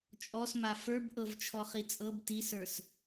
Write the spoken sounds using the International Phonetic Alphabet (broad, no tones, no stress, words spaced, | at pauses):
t͡ʃʼɔsma fə˞bʔɤvt͡ʃʰɔ χit͡sʼɤb tisə˞s